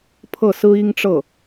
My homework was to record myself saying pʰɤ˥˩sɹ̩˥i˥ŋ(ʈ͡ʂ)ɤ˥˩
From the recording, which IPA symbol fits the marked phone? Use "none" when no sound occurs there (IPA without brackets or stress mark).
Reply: ʈ͡ʂ